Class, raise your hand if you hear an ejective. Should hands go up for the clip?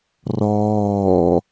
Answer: no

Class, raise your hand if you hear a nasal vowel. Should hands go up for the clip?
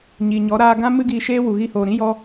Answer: yes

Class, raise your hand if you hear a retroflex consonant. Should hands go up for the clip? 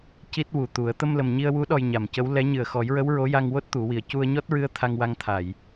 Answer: no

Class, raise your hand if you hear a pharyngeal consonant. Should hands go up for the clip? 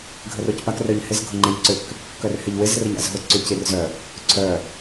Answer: no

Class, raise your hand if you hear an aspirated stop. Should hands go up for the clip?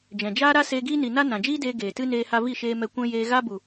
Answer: no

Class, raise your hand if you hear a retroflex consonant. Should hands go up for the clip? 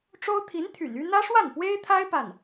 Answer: yes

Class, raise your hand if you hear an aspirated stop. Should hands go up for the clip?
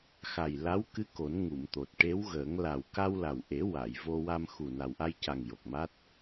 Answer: no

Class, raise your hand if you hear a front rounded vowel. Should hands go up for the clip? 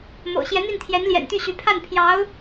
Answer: yes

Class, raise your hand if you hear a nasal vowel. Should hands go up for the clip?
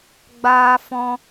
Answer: yes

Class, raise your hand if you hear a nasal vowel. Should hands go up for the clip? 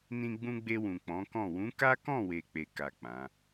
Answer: yes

